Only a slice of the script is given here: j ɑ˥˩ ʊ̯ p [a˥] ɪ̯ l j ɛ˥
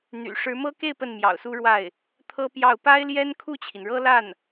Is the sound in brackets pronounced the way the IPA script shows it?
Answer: yes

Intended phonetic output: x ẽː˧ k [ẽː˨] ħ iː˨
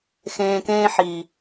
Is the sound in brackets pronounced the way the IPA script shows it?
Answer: no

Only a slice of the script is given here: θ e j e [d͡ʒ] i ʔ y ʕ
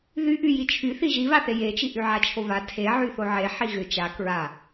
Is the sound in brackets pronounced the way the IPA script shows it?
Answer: no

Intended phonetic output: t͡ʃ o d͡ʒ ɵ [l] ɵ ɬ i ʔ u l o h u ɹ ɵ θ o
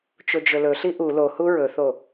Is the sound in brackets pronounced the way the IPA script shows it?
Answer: yes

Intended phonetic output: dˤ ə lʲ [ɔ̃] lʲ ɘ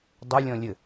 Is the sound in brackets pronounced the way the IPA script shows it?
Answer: yes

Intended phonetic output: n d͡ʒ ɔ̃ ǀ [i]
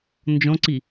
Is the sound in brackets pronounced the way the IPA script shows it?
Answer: yes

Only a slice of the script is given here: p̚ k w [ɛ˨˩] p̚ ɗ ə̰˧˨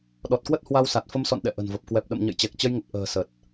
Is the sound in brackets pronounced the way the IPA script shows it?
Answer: yes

